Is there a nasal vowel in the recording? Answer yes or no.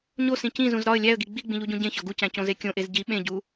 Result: yes